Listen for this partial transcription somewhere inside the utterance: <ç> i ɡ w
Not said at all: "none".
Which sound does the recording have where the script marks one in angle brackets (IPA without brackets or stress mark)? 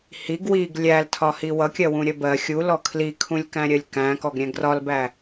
h